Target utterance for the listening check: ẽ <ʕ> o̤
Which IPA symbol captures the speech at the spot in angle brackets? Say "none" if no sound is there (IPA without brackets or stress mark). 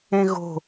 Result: ɣ